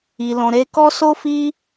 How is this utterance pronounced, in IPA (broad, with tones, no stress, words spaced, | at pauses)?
i˨lɔ̃˨ɾe˧kɔ˦ so˦fi˦